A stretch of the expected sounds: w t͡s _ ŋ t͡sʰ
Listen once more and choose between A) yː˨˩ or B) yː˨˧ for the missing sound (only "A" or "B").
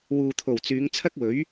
B